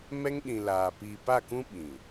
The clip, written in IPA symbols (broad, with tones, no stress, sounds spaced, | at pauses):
m ɛ˦ ŋ ɗ ĩ˨ l aː˨ p iː˨ p a˦˨ k ũ˦ ɓ ĩ˨